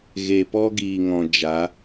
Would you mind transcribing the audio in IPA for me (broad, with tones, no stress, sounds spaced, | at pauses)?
ɣ e˨ p ɔ˧ ɡ iː˨ ŋ ɔ̃˨ d͡ʒ a˨˦